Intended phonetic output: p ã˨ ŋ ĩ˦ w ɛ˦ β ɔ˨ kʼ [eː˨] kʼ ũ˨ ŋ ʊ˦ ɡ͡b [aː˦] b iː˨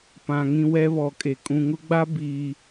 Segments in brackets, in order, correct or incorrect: incorrect: e˨, incorrect: a˦

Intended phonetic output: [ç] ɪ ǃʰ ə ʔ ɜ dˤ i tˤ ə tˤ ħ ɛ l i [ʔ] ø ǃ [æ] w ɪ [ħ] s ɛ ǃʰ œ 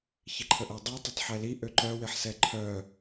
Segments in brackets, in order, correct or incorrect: correct, correct, incorrect: œ, correct

